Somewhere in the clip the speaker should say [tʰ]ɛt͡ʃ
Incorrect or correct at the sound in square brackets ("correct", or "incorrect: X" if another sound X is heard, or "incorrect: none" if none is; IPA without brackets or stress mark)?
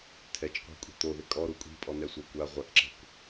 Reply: correct